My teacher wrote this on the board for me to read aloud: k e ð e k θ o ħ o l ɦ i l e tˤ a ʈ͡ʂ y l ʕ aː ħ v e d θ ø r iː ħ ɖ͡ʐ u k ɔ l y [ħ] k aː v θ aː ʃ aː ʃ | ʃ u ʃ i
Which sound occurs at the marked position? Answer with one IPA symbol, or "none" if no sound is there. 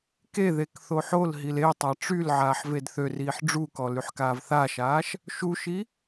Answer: ħ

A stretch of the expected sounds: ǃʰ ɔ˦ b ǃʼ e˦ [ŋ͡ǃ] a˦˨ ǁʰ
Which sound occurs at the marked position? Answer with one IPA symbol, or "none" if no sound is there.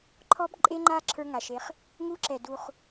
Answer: ŋ͡ǃ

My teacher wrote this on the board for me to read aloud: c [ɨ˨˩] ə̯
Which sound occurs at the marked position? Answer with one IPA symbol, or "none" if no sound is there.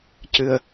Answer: ɨ˨˩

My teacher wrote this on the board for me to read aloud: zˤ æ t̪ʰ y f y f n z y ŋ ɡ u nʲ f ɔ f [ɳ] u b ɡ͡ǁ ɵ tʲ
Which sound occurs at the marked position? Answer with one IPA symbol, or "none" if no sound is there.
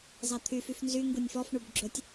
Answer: ɳ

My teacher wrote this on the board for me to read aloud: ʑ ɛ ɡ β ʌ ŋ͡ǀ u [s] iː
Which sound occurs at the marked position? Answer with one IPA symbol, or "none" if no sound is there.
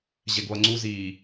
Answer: z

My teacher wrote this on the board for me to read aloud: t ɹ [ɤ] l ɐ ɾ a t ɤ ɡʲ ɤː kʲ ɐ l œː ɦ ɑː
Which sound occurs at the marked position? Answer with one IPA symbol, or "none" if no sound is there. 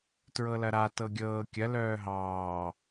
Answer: ɤ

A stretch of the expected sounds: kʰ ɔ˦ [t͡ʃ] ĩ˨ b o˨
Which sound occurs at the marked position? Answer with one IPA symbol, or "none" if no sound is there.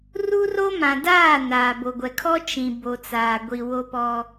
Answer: t͡ʃ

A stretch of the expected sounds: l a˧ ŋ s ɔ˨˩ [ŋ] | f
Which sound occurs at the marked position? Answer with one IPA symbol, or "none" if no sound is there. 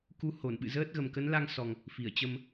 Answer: ŋ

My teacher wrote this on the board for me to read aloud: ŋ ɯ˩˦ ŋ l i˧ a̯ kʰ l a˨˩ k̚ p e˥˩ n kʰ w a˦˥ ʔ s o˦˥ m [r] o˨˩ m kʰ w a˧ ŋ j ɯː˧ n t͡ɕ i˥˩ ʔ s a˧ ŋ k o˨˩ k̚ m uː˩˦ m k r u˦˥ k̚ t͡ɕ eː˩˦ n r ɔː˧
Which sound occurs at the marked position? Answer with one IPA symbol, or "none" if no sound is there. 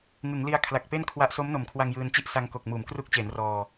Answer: n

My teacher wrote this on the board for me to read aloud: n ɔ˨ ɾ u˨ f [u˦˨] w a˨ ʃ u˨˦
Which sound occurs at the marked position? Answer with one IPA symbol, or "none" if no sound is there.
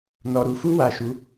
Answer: u˧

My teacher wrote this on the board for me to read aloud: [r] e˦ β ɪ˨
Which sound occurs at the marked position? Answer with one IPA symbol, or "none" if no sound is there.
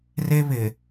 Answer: r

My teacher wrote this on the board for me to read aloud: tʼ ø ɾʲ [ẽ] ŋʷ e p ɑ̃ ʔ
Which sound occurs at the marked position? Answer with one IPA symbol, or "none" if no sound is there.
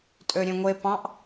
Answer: ẽ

